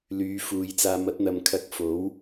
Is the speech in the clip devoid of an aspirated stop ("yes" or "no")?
no